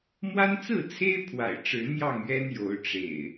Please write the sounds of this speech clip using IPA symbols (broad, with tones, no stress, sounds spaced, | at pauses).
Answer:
m w a˦ n t͡s ɹ̩˥˨ t͡sʰ e˦ ɪ̯ pʰ w a̰˨˩ ɪ̯ ʈ͡ʂ ɻ̩˨˦ n̪ j ɑ˥˨ ŋ ɥ ɛ˦ n j o˨˦ ʊ̯ ʈ͡ʂ ḛ˨˩ ɪ̯